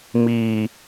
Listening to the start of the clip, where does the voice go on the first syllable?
low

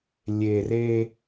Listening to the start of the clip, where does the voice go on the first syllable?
low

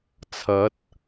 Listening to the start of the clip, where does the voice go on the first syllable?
rising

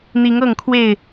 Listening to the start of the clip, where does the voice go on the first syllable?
rising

